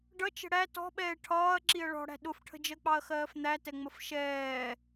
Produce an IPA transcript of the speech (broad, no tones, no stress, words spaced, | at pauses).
ɖʌt͡ʃə̤ ɽæ tɔ̤ɓɛː ʈʰɒːɐ̯ ǁiɐ̯ɭɔ̤ɽæ̤ ɗʊfʈʰə̤d͡ʒɜk͡pɑɐ̯ xɜːfn̪ætɛŋ͡məf ʃɛː